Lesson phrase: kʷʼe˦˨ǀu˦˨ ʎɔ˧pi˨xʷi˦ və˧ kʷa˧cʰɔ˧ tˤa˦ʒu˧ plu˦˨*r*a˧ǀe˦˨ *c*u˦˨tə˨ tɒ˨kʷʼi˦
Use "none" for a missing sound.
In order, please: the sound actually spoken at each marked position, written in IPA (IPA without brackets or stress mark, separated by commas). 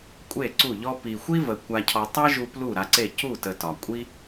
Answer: ɾ, c